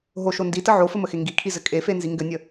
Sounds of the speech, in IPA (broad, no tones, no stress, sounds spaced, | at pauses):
ɦ o ʃ o n d i t ə ʕ o f ɘ m ə x e ŋ ɡ i kʰ i z ɘ kʼ e f e n z i ŋ ɡ ɘ nʲ ə